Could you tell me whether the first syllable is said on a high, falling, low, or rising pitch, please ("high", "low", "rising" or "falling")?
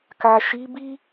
low